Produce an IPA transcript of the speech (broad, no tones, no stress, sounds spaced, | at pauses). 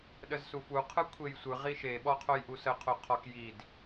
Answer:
ɗ ə z s u f u qʰ ɯ kʷʰ e j sʷ ɯ ʁ i ʃ e ɓ ɔ qʰ o j ʔ u s ə qʰ o qʰ ɔ k j i d